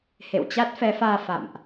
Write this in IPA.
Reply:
h ḛ˧˨ w t͡ɕ a˦˥ t̚ f ɛ˨˦ f aː˧ f a̰˧˨ m ʔ

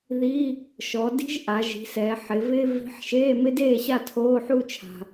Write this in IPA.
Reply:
ð i˧˥˧ | ʃ ɔ˩˧ d i̤˥ ʒ ʔ a˩˧ ʒ i̤˩˧ s ɛː˩˧ ħ ɪ˩˧ v ɪː˥ v i̤˧˥ ħ ʃ eː˧˥˧ m ɪ˥ d eː˥˨ ɕ a˥˨ tʰ oː˧˥˧ ħ u˥˨ t͡ʃʰ a̤˩

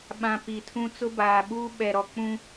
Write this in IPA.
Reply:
ɓ ã˨ p i˨ tʰ ũ˦ t͡s ʊ˦ b aː˨ ɓ uː˦ ɓ ɛ˨ ɾ ɔ˨ k͡p ũ˦

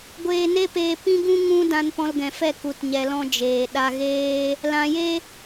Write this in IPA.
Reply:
ɡʷ eː˧ n e˦ p eː˧ p ĩ˦ ɡ ũ˦ ŋ ũ˦ d ã˧ n p ɔ̃˧ l ɡ ɛ̃˨ f ɛ˦˨ k u˨ t ɲ ɛ˨ l ɔ̃˧ d͡ʒ eː˨ ɗ a˧ ɣ eː˦ | l ã˨ j e˦

